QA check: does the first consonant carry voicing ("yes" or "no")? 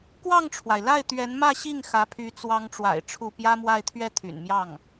no